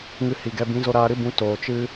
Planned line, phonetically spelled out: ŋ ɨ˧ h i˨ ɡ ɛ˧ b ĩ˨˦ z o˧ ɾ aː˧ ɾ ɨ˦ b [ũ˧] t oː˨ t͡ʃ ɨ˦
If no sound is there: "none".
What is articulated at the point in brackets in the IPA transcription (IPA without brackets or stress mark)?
ũ˧